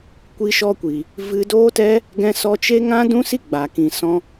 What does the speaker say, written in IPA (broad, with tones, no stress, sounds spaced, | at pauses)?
kʷ i˧ ʃ ɔ˧ kʷ i˨ | v ɨ˧ d oː˦ t ɛ˦ | ɡ ɛ̃˧ s ɔ˧ t͡ʃ e˦ ŋ ã˦ d ũ˦ s i˦ ɡ͡b a˨ k ĩ˨ s ɔ̃˧